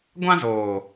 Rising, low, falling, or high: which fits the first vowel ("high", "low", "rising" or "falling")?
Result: high